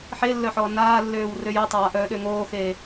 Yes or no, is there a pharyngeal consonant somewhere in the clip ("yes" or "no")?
yes